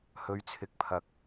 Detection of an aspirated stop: present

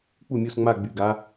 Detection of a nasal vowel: absent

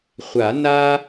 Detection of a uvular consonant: present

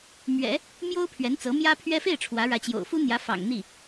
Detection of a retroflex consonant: present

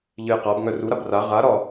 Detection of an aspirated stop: absent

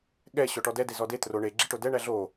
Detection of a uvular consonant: absent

